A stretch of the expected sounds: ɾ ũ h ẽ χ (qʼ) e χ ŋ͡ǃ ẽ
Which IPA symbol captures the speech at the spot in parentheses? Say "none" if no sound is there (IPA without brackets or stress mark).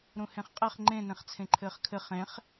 qʼ